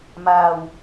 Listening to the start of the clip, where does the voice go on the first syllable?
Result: low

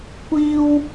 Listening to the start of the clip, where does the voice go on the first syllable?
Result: high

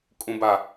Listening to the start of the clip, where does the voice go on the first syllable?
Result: low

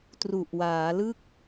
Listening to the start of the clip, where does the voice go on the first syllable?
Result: low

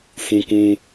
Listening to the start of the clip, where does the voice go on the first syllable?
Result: high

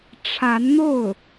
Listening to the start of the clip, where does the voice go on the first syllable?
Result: rising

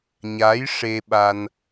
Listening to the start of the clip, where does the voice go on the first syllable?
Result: rising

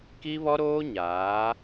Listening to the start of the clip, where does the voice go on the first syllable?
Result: high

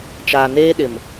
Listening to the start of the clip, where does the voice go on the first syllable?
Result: low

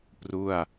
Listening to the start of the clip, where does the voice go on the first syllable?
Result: falling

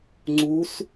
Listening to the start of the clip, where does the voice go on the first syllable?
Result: rising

